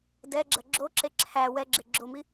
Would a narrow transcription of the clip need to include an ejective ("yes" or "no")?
no